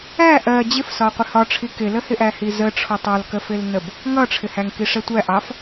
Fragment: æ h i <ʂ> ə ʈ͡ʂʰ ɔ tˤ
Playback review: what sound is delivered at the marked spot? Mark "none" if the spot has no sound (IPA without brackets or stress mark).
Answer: z